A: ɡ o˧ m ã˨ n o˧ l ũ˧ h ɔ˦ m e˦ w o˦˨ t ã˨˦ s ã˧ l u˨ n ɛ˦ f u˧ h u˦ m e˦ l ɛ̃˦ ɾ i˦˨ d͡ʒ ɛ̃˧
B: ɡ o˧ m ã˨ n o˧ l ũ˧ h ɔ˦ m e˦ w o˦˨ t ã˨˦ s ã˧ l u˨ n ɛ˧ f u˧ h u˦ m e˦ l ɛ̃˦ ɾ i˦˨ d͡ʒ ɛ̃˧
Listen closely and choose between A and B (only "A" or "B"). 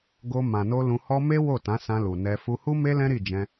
B